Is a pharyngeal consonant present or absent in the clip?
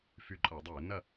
absent